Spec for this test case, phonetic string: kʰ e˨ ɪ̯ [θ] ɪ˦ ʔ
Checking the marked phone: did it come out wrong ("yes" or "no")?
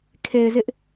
yes